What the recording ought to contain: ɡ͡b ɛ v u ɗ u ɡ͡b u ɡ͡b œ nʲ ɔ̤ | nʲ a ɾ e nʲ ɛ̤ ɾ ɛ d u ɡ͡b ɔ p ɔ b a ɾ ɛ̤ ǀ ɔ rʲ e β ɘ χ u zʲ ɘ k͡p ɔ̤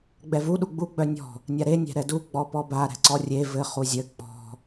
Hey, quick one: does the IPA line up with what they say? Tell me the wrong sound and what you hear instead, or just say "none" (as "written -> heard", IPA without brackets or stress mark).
β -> v